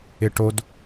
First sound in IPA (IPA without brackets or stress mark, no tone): ɪ